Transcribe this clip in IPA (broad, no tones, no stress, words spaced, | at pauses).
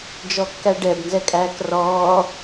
d͡ʒɔkːæɖɛb nzɛkʼæːkrɔː